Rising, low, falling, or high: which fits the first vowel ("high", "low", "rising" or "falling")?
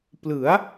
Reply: rising